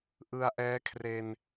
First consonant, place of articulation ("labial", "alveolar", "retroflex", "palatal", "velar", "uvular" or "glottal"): glottal